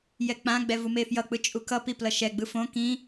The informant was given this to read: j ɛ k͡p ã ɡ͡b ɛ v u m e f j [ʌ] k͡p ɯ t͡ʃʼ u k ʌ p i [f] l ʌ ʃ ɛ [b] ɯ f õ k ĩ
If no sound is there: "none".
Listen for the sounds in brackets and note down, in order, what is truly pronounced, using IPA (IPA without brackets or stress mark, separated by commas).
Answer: ʌ, p, ɡ͡b